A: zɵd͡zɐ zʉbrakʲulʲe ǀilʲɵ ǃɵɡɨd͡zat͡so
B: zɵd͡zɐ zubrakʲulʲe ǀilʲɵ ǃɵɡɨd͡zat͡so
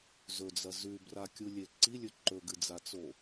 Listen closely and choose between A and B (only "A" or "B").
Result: A